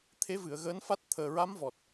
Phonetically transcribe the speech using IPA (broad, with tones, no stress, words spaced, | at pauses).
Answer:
t̪ʰe˧˥vɨ˨˩˨ə̯ɣəː˧˥nfa˦˥t̚ t̪ʰəː˨˩ɹa˧˥mvɔ˨˩t̚